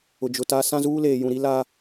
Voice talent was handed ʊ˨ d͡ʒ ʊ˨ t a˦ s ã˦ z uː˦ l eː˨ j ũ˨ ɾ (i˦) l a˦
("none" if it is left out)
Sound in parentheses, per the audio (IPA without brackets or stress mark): i˦